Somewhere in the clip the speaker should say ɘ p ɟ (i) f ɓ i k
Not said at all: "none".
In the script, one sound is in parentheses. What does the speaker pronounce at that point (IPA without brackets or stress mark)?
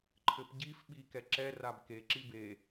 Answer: i